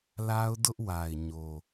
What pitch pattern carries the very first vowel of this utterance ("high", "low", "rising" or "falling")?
high